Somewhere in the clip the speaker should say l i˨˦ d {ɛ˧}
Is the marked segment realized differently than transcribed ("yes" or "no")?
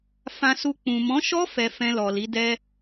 yes